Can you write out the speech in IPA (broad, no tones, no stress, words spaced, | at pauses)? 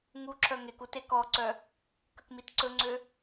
ŋu ǁʰœŋeku tekɔǀœ | kəkmitǀɵŋ͡ǀø